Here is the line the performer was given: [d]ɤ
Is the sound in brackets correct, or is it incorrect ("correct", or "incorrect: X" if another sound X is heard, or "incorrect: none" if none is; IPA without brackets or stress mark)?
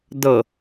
correct